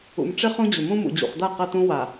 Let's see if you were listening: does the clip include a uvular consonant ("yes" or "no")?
yes